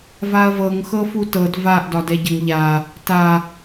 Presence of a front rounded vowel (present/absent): absent